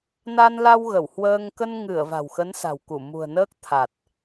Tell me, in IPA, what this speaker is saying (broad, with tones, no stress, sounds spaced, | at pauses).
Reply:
n a˧ n l a˧ w ɣ ə˧˩ w h w əː˧ ŋ k ə˧ n ŋ ɨ˧˩ ə̯ v a̤˨˩ w x ə˨˦ n s a̤˨˩ w k u˧˩ m ṳ˨˩ ə̯ n əː˦˥ k̚ t̪ʰ a˨˩ t̚